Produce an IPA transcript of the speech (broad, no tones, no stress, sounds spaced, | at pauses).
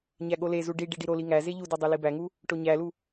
ɲ æ ɠ o l e z u ɖ i ɖ i ɖ i ɾ o l i ŋ æ z e ʎ u d o dˤ e l i b æ ŋ u | ʈ o ɲ æ l u